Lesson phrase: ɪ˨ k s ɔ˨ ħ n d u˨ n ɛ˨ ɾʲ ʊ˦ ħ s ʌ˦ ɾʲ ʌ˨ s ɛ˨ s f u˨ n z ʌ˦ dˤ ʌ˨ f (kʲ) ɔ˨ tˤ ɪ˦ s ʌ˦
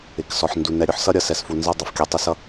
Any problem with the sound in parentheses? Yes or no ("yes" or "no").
no